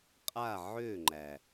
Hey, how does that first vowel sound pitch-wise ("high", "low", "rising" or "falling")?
falling